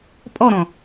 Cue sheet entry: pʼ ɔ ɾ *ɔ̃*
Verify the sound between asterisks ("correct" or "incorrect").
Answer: correct